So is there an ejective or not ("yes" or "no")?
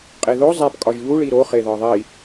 yes